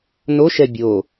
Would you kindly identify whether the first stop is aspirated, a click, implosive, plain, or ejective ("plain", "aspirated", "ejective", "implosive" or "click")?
plain